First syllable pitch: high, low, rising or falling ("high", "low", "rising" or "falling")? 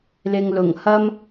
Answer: low